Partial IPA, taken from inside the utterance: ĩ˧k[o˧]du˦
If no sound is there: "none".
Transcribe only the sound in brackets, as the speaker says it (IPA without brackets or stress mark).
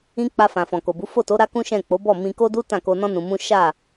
o˦